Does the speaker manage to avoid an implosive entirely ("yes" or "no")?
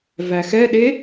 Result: no